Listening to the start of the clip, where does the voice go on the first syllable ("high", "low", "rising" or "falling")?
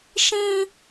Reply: high